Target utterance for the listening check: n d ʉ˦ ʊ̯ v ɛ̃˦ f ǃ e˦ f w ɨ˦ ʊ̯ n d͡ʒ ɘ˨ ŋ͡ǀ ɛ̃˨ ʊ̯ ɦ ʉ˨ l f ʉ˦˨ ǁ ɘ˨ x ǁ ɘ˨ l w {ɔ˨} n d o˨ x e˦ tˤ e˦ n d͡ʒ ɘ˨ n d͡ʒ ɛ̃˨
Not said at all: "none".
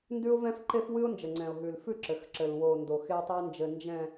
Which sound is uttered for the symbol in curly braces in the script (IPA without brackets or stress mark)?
o˨